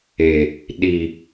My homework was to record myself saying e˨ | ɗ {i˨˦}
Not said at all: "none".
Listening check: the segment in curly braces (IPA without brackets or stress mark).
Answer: i˨